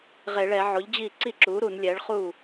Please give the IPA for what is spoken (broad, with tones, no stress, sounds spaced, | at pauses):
ʁ e˧˩˧ ɭ ɛ˧˩˧ ʕ o˩˥ ʎ d͡ʑ i˥˩ ǀ i˥˩ ǁ u˩˥ ɾ u˧˩˧ n lʲ ɛ˩˥ ɭ χ u˥˩